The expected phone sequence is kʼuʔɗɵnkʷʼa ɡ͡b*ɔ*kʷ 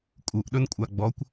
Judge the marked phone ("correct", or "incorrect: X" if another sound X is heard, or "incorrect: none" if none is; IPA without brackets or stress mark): correct